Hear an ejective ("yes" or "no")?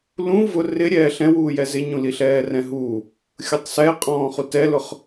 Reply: yes